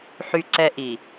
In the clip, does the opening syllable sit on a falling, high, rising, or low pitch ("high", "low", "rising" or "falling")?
high